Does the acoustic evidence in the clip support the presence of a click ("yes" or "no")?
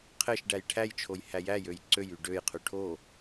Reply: yes